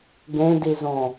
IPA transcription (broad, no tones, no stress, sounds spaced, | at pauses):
ɡ ẽ d i z õ